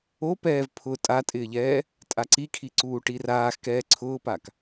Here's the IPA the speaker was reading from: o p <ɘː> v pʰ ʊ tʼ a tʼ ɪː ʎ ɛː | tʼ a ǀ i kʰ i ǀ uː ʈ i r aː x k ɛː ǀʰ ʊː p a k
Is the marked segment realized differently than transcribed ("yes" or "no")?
yes